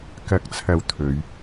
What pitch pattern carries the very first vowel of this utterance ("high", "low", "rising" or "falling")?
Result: low